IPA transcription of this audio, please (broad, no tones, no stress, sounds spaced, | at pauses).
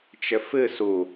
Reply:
t͡ʃ ɘ f ɨ s u